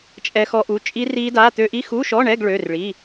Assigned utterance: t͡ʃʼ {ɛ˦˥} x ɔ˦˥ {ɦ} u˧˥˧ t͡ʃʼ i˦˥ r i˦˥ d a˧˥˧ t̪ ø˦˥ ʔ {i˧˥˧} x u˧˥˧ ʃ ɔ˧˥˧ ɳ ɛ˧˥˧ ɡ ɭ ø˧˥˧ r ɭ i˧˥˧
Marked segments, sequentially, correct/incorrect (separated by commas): correct, incorrect, correct